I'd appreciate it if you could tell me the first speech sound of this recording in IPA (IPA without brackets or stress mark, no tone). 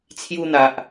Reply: t͡sʰ